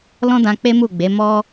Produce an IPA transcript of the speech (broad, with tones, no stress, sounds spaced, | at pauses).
l ɔ̃˦ d ã˧ k͡p e˦ m u˦˨ ɡ͡b e˨˦ m ɔ˦